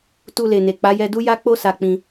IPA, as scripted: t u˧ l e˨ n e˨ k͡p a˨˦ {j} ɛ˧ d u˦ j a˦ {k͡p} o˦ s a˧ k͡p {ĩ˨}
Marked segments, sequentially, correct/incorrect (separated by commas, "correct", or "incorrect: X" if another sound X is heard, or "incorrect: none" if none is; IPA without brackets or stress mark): correct, correct, incorrect: ĩ˧